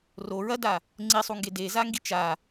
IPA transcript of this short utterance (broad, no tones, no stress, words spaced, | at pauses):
ro ɹɐda | ŋ͡ǀisˤuŋɡe dezaŋɡi t͡ʃa